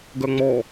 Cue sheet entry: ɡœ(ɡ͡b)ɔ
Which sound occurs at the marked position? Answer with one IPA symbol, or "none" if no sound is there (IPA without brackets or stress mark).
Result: ŋ͡m